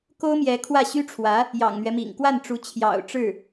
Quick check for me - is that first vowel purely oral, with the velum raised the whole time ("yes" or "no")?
yes